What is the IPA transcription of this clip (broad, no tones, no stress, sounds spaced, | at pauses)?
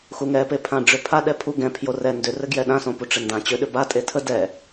x u ŋ ɛ p e pʰ ã ɖ͡ʐ ʏ pʰ a ɗ ɛ pʰ u ɡ ɛ̃ pʰ j o r ɛ n d ʏ r ɘ ɡ j ɛ ɗ ã s õ p u ʈ͡ʂ ɘ n d ã t͡ɕ ʏ ɗ ʏ b a tʼ e tʰ ə d ɛ